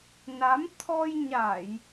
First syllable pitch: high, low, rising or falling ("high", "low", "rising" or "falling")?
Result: rising